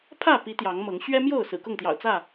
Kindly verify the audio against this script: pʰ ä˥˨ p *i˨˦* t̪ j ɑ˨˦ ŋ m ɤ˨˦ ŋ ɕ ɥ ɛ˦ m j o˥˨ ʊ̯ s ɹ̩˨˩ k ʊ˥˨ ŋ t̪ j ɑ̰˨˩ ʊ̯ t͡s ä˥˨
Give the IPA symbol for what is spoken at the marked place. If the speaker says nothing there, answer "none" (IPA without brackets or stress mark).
i˨˦